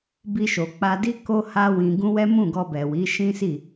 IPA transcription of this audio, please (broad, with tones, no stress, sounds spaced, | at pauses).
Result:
b i˧ ʃ o˨ k͡p a˧ d i˦ k o˦ h a˦ w ĩ˧ ɡ ũ˦ w ɛ˦ m ũ˦˨ ɡ ɔ˧ b ɛ˨ w i˨˦ ʃ ĩ˦ s i˦˨